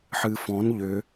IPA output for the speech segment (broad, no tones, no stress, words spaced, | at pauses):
ħɨfɔ̃n ʎʏ